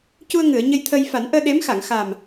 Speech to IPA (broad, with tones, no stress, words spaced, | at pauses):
cu˧ə̯ŋɨ˨˩˨ə̯ ɲə˧jt̪ʰə˧j fa˨˩˦nʔəː˧ɗe˧˥mxa˨˩˨ŋ xa˨˩m